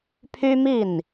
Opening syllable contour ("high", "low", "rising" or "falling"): high